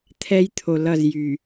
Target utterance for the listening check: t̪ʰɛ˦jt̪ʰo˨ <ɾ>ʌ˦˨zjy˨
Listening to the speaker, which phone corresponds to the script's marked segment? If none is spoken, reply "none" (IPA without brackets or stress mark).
l